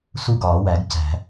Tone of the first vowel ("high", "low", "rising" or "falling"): falling